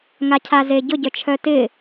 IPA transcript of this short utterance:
ŋacʰazeɟʊ ɟœt͡ʃʰœtɪ

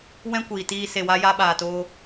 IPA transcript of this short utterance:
wɛ̃˦kʷiː˨tiː˧ se˧wa˦ja˦ ɓaː˧toː˦

